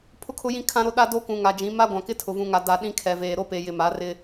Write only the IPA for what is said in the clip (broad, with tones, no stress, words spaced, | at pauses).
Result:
pʰʊ˦kʰʊ˦jĩ˦ kʰã˦ɾo˦ ɗa˦do˦kũ˨ ŋa˨d͡ʒĩ˨˦ ma˦ ɡʷã˨kɪ˦tʰʊ˨ vũ˨ŋa˨da˨ ɗĩ˦kʰɛ˨veː˨ ɾo˦pe˨jɪ˨ma˨˦ rɪ˦